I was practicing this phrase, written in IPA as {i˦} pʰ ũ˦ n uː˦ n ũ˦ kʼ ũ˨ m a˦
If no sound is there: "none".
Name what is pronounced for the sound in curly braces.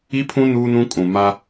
i˦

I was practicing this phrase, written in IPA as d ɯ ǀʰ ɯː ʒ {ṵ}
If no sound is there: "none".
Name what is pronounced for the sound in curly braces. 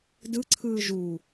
u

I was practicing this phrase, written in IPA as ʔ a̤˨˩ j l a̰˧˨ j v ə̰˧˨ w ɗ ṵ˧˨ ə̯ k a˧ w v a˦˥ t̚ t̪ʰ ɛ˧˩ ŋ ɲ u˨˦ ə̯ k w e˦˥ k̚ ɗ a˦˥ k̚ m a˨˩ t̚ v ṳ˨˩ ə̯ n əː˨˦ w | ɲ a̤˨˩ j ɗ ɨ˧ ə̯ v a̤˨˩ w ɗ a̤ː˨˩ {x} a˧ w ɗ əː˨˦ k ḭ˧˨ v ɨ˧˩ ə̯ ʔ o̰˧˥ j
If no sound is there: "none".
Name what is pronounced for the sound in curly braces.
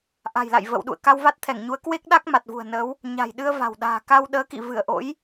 k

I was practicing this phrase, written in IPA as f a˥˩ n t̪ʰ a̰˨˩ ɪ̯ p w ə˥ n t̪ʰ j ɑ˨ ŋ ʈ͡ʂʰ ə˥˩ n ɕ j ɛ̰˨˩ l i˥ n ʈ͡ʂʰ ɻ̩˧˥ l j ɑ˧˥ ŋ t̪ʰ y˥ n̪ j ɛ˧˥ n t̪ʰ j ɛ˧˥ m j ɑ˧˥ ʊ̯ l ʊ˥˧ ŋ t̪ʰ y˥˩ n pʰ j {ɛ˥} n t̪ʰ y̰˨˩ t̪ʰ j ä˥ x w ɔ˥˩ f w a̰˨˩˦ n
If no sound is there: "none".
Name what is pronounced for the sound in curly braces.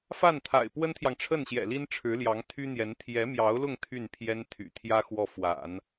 ɛ˥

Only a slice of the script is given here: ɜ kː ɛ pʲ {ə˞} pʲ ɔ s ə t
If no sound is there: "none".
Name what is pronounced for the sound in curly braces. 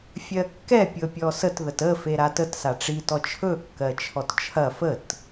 ɤ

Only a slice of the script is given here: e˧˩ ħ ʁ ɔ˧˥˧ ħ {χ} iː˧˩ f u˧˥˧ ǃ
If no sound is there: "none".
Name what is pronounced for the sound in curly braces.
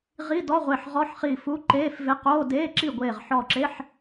χ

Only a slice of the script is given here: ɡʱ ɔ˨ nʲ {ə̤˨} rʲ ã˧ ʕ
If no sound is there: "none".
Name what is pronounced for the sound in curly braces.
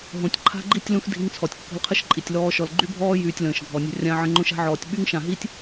ə̤˧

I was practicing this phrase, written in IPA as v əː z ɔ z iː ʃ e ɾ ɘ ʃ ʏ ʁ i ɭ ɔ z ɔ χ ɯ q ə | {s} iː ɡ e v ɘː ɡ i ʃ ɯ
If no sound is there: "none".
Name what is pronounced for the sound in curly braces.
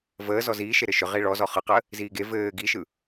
z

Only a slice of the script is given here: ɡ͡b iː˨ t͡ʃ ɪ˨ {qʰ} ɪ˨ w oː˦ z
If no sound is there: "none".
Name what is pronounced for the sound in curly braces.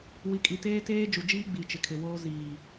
kʰ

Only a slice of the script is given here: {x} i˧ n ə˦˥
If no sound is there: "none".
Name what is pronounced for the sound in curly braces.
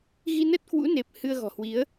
ɣ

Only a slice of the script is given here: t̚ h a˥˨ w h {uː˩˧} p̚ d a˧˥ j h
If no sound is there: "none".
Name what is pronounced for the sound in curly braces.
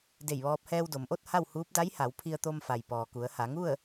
uː˧˥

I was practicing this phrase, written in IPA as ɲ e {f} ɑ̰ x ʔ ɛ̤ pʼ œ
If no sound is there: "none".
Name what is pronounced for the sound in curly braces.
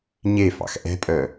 f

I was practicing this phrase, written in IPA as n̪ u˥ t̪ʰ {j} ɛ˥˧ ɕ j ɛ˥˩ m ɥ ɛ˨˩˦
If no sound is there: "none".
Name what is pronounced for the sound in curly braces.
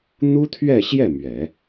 ɥ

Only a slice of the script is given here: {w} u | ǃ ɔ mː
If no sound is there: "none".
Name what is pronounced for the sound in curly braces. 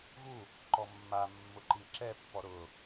ɣ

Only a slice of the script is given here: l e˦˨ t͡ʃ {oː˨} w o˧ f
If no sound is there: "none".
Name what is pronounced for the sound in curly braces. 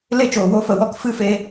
oː˨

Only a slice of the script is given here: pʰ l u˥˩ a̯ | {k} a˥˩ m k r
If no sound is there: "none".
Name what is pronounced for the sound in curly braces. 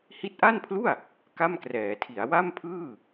k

